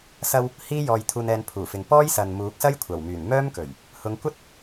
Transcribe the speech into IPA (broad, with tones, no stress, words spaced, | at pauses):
sɐ˧w | hiː˥jɔː˧jt̪ʰuː˧nɛː˧n pʰuː˨˩fɪ˨ŋ pɔː˥jsɐ˨n muː˨˥k̚sɐ˥jkʷʰɐ˨˩wmyː˨˩n mœː˥mkɵ˨˩ɥ | hʊ˨˧ŋ kʷɐ˥t̚